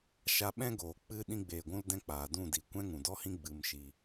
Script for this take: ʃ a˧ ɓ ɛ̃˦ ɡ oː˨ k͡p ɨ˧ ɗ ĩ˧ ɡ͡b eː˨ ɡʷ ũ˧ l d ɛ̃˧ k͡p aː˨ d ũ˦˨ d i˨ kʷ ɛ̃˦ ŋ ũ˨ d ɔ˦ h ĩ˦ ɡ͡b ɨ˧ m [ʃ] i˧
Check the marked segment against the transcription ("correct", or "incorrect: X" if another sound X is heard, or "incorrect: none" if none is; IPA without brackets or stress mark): correct